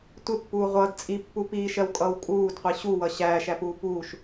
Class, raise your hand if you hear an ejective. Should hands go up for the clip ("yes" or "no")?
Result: yes